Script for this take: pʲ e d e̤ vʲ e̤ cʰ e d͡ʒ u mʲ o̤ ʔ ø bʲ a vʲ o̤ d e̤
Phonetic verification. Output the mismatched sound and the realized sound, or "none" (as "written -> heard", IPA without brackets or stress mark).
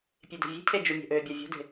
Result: none